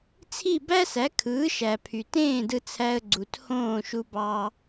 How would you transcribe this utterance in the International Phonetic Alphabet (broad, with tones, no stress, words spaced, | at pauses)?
t͡sʰi˥˩bæ˥sæ˩˥ kʰɯː˩˥ʃæ˩pʰy˩tẽː˥˩ dɯ˧t͡sʰæ˧ə̯ ɡ͡ǀu˩thõː˥˩ʃu˧bɑ˧